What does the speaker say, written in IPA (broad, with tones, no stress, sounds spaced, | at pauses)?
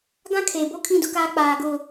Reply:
ɡ ã˦ kʰ e˨ b o˦ kʰ ĩ˦˨ d ʊ˦ k aː˦ k͡p aː˨ ɡ ʊ˦˨